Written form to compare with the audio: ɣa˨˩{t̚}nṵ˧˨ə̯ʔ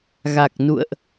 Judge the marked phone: incorrect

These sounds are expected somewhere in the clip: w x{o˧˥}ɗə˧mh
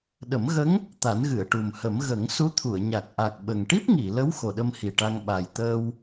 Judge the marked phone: incorrect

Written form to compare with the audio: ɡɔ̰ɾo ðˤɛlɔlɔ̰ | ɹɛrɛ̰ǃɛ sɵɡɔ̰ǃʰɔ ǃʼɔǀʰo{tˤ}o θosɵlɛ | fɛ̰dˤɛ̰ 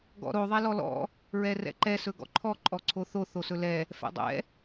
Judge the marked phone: incorrect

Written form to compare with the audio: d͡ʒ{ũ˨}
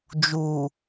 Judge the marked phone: incorrect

